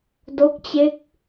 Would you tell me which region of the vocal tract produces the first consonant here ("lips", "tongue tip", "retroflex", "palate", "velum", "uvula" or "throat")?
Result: tongue tip